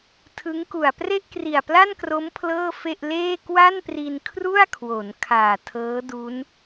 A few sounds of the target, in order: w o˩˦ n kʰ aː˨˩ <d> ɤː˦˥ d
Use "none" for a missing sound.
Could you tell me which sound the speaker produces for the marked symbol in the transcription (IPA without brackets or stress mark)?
tʰ